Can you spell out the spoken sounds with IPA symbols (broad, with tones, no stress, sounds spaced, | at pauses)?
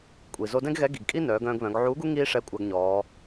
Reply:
kʷʼ i˩ z o˧ d ɛ̃˥ ɡ ɣ ɛ˧˥ ɡ i˩ ɡ kʼ i˥ n œː˩˧ ɡ œ̃ː˧ ɡ β œ̃˩˧ ɡ ʕ uː˧˥ ɡ u˥ ŋ iː˥ ʂ ɛ˧˥ kʷʼ a˧ ɡ ɲ ɔː˩˧